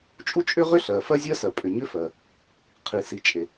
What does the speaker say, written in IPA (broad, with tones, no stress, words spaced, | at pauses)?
t͡ʃʼu˥t͡ʃʼʏ˥ʁʏ˥ ɬɜ˩ fɜ˥zʲɜ˥sɜ˩ pʼʏ˩ɲʏ˥fɜ˩ | qʰi˩si˩t͡ʃʼe˩